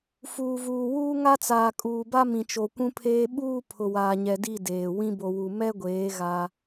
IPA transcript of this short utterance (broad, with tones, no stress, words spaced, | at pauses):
fuː˨vuː˨ wuː˦ŋa˦t͡saː˨ kʼuː˨ba˦ mĩ˨t͡ʃo˨kʷũ˦pʰeː˦ ɓuː˦˨ pʰʊ˨waː˨ɲɛ˨di˦˨ deː˨ wĩ˦bo˨wu˨ mɛ˦ɡʷeː˨˦ ɣa˦